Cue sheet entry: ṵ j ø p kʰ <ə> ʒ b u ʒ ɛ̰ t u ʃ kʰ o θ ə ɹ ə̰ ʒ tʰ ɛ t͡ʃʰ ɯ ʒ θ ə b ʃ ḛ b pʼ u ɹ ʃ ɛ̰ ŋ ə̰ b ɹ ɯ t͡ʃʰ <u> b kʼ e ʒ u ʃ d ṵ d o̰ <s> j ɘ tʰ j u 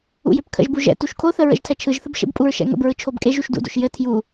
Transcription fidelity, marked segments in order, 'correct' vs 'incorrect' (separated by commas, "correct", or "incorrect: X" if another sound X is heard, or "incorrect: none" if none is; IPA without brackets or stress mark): incorrect: ə̰, incorrect: o, incorrect: ʃ